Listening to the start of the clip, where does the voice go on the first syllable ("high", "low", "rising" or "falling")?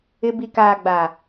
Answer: low